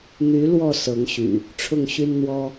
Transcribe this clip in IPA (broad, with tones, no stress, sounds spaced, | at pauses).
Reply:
n̪ y˨˦ l w ɔ˥˨ s ɤ˨˦ ŋ ɕ y̰˨˩ | ʈ͡ʂʰ ʊ˥˨ ŋ ɕ y˦ n n̪ w ɔ˦